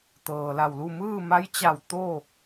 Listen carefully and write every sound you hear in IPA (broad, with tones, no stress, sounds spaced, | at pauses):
t̪ ɤː˩ l a˧˩ w l u˥˨ m ɯː˥˨ m a˧˥ j t͡ɕ a˧˩ w t̪ o˥˨